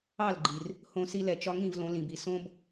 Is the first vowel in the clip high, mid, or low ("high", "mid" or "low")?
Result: low